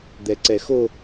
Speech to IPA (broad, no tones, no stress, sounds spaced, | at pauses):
d̪ ɛ ǀ ɛ x o